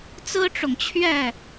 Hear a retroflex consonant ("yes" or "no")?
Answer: yes